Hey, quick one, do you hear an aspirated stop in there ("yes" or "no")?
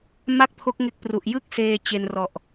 yes